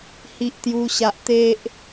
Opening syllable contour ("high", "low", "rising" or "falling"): high